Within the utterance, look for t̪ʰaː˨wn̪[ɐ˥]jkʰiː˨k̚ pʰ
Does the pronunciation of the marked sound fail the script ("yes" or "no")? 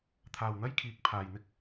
no